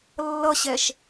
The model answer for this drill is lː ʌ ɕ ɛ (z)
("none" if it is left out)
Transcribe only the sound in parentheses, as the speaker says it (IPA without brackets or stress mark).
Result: ʃ